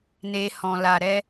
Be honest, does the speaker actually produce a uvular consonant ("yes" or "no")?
no